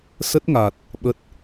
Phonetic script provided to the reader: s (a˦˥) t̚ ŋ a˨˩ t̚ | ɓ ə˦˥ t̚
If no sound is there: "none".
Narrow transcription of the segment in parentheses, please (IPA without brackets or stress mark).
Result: ə˦˥